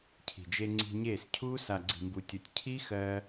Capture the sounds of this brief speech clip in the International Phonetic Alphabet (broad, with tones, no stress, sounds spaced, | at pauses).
cʰ i̤˨ d͡ʒ e˧ ŋ͡ǀ i̤˧ ɲ eː˦˨ s cʰ uː˦ s a˨ ɡ͡ǀ i̤˨ m b u˨ tʲ o˨ tʲ cʰ i˦ x ɜ˧